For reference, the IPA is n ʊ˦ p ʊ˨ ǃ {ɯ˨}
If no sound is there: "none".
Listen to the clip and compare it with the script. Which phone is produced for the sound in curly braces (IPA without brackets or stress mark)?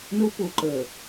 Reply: ə˨